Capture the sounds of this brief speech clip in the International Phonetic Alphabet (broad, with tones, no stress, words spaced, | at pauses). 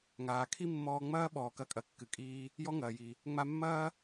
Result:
ŋaː˩kʰi˥mːɔː˧ŋ͡mɐː˥ ɓɔː˩kɐ˧kʼɐ˩kːɨ˩ kʼiː˧ | jɔ˥ŋɐː˩ji˩ | ŋ͡ma˧mːɐː˥